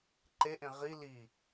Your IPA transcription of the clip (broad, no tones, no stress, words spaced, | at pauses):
ǃeʔẽ ʁi li